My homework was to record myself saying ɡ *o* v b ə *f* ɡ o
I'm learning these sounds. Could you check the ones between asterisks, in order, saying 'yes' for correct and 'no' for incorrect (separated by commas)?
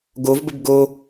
yes, no